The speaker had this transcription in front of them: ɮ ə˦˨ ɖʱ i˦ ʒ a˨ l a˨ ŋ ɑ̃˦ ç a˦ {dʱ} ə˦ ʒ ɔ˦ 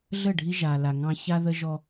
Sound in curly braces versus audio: incorrect: ð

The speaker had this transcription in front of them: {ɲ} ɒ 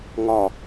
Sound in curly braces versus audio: incorrect: ŋ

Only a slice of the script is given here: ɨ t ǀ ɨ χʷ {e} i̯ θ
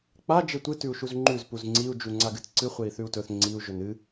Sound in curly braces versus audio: correct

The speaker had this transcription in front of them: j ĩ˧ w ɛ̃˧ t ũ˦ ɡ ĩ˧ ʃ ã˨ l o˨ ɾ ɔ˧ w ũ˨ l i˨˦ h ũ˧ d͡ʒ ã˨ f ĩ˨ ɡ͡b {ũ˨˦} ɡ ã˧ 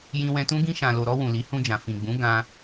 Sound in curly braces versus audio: correct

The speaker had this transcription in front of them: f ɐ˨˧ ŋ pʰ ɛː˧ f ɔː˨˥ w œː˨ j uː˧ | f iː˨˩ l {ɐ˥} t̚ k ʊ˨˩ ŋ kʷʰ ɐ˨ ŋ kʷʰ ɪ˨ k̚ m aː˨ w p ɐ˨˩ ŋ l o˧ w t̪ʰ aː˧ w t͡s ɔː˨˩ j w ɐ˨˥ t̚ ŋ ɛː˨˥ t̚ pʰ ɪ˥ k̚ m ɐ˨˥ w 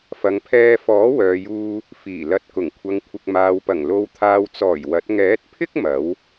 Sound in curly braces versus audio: incorrect: ɐ˨˥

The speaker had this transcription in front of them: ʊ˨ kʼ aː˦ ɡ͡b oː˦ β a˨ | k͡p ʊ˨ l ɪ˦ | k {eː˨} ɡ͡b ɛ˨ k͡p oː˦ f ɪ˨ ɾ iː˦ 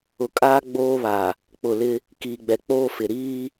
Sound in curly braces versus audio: incorrect: iː˨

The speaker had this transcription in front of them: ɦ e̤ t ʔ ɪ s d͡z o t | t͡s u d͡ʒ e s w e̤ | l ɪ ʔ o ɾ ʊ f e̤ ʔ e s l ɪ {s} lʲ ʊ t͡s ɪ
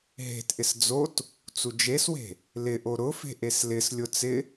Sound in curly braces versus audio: correct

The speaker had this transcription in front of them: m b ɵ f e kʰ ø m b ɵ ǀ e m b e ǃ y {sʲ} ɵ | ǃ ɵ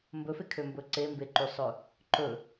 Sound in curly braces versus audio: incorrect: sˤ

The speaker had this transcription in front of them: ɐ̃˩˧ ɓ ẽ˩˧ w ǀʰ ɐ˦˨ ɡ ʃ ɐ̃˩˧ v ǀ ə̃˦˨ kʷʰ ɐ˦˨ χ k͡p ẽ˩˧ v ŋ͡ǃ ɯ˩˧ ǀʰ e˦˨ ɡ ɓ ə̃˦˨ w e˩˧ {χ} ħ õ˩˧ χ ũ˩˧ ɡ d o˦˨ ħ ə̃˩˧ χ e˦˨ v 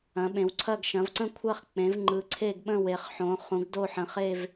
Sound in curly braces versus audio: correct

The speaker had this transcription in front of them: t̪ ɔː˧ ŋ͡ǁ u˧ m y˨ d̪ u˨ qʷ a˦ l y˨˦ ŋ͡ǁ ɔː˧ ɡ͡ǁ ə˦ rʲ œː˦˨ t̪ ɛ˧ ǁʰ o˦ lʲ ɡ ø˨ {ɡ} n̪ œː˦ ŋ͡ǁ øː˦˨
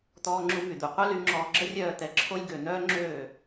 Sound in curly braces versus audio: incorrect: none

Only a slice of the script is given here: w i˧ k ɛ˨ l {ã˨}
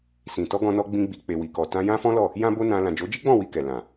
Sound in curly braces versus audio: correct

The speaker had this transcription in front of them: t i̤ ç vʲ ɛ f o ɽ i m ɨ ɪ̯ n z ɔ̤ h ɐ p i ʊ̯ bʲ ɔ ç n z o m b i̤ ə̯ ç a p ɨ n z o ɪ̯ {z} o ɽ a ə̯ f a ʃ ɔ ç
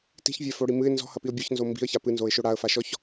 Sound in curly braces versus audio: incorrect: ʃ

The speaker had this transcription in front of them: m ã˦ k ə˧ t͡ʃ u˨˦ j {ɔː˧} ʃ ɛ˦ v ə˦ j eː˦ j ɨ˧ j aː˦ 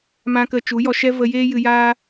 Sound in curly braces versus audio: incorrect: ɔ˧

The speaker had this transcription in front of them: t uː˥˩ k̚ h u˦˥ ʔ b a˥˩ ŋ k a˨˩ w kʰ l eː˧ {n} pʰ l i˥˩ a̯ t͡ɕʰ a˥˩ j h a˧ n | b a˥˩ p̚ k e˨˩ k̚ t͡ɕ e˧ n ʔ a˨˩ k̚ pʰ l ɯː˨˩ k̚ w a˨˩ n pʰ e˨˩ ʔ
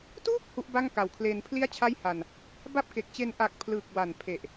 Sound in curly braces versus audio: correct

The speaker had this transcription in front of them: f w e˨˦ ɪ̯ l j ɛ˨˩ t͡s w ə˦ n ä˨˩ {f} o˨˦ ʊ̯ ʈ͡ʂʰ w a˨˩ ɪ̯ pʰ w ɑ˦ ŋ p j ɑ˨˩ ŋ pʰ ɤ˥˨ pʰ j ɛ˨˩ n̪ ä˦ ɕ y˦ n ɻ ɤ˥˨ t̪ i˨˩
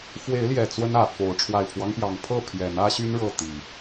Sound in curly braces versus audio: correct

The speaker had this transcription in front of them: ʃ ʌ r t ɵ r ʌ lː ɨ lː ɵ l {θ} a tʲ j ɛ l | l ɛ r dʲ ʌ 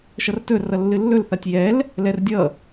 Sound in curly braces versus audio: correct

